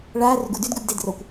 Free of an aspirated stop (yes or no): yes